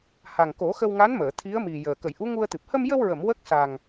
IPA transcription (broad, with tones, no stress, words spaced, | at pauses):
ha˨˩ŋko˨˩˦xə˧wŋa˧˥n məː˨˩˨t̪ʰi˧˥ə̯mi˨˩jəː˨˩ kə˨˩˨jʔu˧˥ŋu˧ə̯t̪ɨ˨˩p̚ hə˧mjə˧wɹə˨˩˨m wə˦˥k̚sa˨˩ŋ